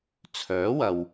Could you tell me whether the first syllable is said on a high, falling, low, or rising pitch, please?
rising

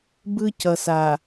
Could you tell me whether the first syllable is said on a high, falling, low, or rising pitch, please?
high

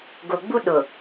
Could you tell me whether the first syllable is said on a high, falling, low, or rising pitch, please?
low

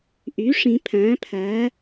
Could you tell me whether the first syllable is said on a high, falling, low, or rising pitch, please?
rising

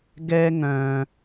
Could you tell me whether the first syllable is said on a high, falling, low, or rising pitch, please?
high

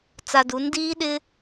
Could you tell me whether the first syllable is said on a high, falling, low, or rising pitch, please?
low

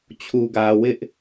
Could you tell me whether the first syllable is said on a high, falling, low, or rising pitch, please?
low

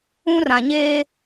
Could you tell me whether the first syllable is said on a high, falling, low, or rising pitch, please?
high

